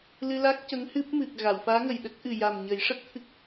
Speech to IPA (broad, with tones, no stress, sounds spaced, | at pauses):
l ɨ˧ l a˦˥ k̚ c ə˧˥ ŋ h ɨ˦˥ p̚ m ɨ˨˩ k̚ ɣ a˨˩˨ w f aː˧˥ ŋ ə˨˩ j ɗ ə˦˥ k̚ ʔ ɨ˨˩ j a˨˩ m ɲ ə˨˩˦ j ʂ ə˦˥ k̚ t̪ʰ ɨ˦˥ k̚